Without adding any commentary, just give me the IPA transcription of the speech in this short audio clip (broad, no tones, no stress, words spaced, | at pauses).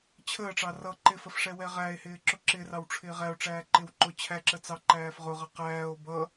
t͡ɕʰəːʈ͡ʂɑ rʌ ǃɪfəf ʂɛwɛʁæe̯hɪː ǁʊǁɪrɑw ʈ͡ʂʰɪːʁæo̯ʈ͡ʂæː ǃɪw ǃʊ t͡ɕʰæǁə t͡sɑ ǃæːfʁʊʁʌ qæːo̯ bʌ